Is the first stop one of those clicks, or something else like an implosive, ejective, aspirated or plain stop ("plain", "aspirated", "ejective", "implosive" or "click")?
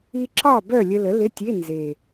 click